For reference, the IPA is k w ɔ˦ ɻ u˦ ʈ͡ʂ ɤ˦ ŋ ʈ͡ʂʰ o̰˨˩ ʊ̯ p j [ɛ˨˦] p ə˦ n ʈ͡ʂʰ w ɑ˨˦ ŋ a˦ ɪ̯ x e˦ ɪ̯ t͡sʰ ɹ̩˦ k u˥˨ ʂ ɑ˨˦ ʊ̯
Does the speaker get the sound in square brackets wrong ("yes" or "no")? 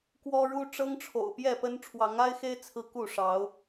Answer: yes